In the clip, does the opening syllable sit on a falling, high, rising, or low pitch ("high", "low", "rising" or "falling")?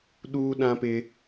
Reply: high